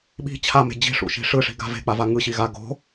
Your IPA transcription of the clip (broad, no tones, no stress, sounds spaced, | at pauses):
ɓ i̤ t͡ɕʰ a m e̤ d͡ʑ i̤ ʂ ṵ ʃ i̤ ʂ ɯ ʂ i̤ ɡ a̤ v e̤ k͡p a v a ŋ ɯ ɕ i ɣ a ɡ o̤